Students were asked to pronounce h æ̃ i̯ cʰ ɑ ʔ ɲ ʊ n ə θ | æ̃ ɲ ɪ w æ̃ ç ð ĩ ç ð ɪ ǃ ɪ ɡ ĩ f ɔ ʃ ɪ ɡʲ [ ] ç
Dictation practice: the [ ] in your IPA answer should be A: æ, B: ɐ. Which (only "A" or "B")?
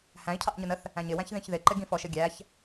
A